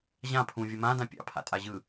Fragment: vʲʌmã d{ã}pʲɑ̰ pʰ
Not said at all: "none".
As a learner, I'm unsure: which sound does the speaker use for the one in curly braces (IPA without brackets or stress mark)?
ã